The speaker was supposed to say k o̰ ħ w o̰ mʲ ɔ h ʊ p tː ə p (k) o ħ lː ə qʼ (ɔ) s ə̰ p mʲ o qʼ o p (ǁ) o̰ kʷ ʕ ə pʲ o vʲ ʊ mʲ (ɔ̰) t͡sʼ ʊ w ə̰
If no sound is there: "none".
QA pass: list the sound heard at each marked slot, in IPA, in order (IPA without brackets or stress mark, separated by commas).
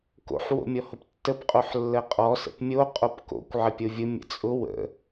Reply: qʼ, ɔ, k, ə̰